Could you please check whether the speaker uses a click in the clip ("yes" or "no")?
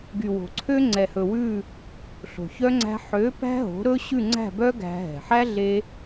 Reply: yes